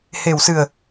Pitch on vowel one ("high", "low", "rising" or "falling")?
low